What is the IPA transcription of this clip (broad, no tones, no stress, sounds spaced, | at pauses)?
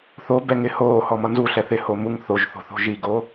θ o b ɛ ŋ ɪ h oː h ɔ m ʌ n z u ɬ ɛ θ ɪ h o m u ŋ θ o ʒ θ o̤ θ o̤ ʒ i ɡ o